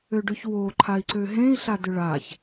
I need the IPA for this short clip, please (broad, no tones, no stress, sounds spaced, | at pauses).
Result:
ø ɖ ø ç w o ǃʰ a i̯ ǀ ø ɦ ẽ i̯ ɬ a d ʏ ɭ a ç